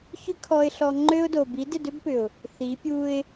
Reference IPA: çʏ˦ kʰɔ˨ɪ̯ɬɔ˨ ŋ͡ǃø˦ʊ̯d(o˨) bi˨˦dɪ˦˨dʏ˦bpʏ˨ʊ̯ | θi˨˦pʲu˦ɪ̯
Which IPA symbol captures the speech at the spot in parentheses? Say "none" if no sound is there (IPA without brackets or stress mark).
o˨